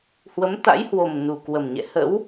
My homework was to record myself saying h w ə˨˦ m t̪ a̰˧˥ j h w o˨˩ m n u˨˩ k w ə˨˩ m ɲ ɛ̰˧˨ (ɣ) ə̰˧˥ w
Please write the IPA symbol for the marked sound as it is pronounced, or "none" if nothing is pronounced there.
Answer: h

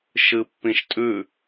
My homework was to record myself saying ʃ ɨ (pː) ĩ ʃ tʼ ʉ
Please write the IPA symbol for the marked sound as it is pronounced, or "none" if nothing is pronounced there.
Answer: pː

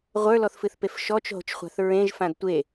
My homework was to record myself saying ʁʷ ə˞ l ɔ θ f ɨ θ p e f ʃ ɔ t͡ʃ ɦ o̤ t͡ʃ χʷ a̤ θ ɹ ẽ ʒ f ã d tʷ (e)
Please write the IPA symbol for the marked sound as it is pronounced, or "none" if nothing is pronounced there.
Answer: e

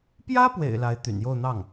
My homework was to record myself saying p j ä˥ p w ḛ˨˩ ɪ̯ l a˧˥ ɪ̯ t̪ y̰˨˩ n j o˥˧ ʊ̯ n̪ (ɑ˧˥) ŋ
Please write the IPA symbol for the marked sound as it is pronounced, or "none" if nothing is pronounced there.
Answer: ɑ˥˩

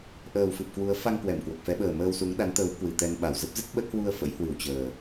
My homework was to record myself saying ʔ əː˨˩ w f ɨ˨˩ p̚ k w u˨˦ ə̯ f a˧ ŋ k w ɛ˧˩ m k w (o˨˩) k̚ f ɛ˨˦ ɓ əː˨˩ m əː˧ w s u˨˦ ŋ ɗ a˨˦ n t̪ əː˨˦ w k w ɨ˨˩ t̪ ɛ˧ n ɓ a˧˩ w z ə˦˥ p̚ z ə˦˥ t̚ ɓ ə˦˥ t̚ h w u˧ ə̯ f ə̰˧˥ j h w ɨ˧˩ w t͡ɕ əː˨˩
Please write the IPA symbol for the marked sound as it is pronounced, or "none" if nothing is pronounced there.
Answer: o˨˩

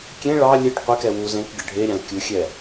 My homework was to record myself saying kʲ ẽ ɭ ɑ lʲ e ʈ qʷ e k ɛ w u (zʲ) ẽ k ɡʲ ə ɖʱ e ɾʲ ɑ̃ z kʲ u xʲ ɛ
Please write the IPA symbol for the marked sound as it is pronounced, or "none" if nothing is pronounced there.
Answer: z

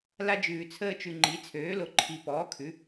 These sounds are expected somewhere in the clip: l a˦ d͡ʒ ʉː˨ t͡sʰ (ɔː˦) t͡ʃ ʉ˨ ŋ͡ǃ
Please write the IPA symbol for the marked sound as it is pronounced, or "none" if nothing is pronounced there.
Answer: əː˦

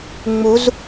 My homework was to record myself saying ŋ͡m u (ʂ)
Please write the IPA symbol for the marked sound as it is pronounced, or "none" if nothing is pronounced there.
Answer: z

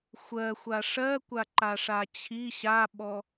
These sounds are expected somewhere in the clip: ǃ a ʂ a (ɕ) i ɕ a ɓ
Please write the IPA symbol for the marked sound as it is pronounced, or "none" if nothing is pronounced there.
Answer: t͡ɕʰ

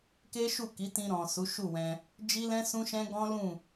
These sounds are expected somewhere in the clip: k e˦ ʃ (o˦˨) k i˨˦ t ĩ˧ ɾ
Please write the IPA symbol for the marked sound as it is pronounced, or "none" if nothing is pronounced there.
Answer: u˦˨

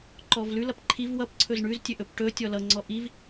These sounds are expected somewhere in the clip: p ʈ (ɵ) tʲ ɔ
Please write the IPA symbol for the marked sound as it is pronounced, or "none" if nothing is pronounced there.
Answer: ɵ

